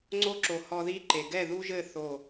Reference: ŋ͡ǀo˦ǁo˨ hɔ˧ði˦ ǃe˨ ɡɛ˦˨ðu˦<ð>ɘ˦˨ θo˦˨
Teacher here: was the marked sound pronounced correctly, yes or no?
no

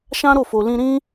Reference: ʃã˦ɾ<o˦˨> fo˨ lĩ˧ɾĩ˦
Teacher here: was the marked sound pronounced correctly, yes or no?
yes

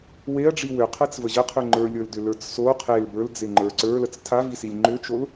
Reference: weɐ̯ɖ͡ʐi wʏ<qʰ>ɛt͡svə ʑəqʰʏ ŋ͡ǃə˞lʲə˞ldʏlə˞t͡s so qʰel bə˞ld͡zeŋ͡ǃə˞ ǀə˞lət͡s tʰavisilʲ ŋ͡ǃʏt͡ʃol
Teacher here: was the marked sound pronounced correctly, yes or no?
yes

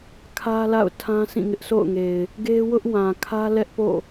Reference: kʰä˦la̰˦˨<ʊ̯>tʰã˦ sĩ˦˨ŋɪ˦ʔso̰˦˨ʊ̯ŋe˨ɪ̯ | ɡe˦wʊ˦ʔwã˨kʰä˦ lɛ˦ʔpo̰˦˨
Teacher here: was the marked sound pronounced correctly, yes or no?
yes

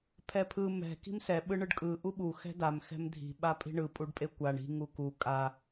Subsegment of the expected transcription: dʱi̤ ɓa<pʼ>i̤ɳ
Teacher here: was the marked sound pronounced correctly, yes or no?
yes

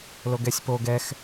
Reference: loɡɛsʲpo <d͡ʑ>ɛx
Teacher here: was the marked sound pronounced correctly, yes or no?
no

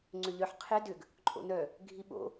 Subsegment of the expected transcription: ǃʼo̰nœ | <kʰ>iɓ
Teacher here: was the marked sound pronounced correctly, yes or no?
no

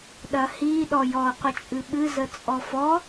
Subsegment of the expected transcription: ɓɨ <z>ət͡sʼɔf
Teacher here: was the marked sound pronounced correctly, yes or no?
yes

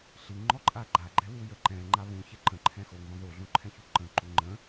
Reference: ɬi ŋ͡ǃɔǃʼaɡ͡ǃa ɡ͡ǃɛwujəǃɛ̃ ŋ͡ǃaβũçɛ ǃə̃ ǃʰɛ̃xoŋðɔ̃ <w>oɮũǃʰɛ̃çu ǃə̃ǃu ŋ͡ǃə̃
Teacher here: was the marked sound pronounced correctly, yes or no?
no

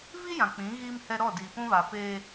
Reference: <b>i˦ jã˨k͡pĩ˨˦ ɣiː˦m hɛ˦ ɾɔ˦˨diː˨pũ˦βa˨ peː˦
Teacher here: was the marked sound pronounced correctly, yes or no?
no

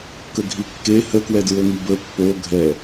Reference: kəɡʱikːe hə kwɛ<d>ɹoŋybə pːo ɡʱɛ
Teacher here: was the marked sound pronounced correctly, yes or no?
yes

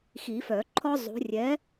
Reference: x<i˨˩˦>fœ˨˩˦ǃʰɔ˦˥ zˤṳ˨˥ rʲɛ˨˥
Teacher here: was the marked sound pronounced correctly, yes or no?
yes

